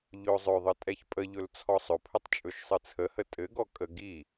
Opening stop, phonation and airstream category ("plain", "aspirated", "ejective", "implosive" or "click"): ejective